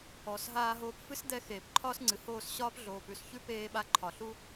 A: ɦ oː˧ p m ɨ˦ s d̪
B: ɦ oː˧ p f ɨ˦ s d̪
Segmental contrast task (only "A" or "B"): B